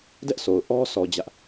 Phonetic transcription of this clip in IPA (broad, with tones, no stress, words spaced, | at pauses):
dɛ˦ʔso˨ʊ̯ ʔɔ˦sɔ˨ d͡ʑä˦ʔ